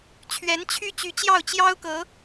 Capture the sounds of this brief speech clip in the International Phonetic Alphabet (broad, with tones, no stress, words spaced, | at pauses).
t͡ɕʰɥɛ˧˥nt͡ɕʰy˥ t͡ɕy˧˥t͡ɕjɑ˥˩ʊ̯ t͡ɕjɑ˥ʊ̯kɤ˧˥